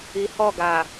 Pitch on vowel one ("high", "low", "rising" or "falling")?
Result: low